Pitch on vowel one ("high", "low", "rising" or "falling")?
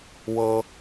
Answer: high